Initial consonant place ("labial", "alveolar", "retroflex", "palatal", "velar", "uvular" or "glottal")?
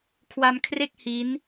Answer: velar